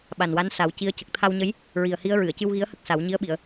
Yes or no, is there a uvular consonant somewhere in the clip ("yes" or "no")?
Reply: no